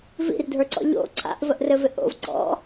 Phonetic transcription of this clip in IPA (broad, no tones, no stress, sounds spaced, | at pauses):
v ḭ r dʱ ə˞ ǀ ɔ̰ ʎ o̰ ǀʰ a̰ ʔ v ə ʔ r ɘ v ɪ ʔ o̰ v ǀ ɔ̰